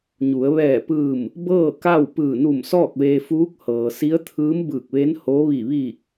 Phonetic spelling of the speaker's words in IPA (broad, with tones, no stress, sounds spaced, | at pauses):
ɲ u˩˧ ə̯ ʋ ɛː˧˩ p ɯː˧˩ m | b ɤː˥˨ k a˥˨ w p ɯː˧˩ n u˧˩ m s ɔː˥˨ k̚ ʋ eː˧ f uː˧˥ k̚ h ɤː˩ s i˧˥ ə̯ t̪ʰ ɯː˧˥ m b ɯː˧˩ k̚ ʋ e˧˥ n h o˧˥ ʋ i˧˩ ʋ iː˧˩ k̚